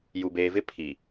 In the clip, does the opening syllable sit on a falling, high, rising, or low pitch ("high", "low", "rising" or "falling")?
low